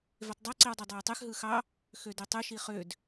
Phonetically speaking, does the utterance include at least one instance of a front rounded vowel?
yes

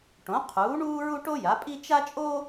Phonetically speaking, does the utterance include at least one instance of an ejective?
yes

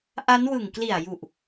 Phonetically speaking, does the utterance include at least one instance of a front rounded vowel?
no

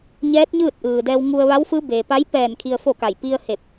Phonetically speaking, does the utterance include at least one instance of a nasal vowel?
no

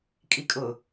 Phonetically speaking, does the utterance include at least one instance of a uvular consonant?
no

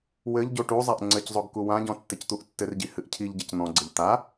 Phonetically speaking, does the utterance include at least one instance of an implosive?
no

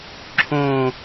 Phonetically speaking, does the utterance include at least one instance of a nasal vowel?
yes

